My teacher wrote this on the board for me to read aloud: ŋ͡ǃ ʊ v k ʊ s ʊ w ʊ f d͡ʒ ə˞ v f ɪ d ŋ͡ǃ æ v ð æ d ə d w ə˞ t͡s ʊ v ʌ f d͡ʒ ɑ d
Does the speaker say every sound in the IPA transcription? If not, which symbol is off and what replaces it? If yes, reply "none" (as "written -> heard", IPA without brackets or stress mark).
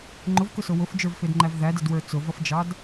none